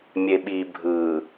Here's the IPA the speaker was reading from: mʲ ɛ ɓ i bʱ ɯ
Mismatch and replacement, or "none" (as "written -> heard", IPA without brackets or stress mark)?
ɛ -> e